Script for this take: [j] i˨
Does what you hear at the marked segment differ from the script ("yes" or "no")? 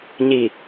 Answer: yes